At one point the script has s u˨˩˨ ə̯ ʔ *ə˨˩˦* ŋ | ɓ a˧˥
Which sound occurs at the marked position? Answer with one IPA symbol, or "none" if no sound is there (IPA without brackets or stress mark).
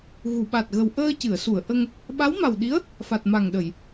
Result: ə˧